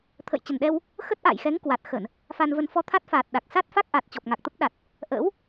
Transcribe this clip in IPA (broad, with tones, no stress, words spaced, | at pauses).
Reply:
t̪ʰə̰˧˨jt͡ɕə˨˩nɗɛ˧w | xə˦˥t̚ʔa̰ː˧˨jxɛ˨˦ŋ kwa˨˩t̚xə˧˩˨n | fa˧nvə˧n fɔ˧t̪ʰa˦˥t̚faː˨˩t̚ ɗa˨˩k̚ sa˦˥t̚fa˦˥k̚ʔa˨˩t̚ t͡ɕɔ˨˩p̚ŋa˨˩k̚t̪ə˦˥p̚ɗa˨˩t̚ | ʔə̰ː˧˥w